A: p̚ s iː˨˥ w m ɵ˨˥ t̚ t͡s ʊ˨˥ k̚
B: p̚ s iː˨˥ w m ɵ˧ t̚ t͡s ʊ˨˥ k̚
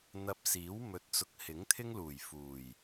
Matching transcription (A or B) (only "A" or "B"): A